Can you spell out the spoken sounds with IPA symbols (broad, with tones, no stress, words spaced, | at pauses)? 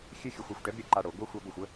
xʲɘ˦ xʲo˨xʷa˨xʷʈɛ˨˦bɾʲɯ˨ ǃa˦ɽo˨˦ ɡʷœ˦ xʷa˦bo˨xʷ ə˦